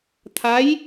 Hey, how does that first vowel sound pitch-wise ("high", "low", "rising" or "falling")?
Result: rising